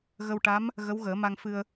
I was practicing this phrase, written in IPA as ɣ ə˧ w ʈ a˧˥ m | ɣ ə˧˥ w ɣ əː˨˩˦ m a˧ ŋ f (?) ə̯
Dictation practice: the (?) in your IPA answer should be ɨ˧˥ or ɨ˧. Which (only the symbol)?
ɨ˧